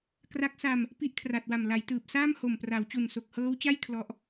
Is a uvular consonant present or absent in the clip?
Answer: absent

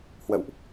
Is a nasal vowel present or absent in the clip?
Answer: absent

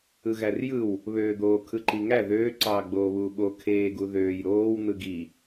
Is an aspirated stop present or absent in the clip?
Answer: present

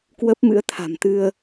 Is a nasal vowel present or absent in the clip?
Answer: absent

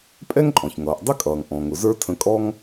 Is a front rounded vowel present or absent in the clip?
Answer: absent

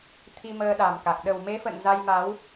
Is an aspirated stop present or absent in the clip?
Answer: present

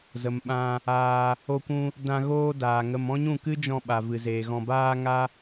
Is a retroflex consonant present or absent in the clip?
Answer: absent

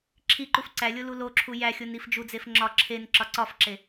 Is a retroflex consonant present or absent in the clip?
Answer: absent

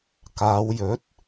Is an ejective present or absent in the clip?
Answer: absent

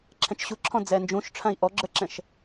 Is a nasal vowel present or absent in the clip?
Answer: present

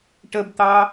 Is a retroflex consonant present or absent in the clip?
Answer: present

